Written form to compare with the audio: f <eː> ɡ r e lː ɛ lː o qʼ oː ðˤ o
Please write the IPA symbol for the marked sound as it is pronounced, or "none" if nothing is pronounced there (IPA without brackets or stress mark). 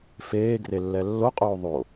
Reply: eː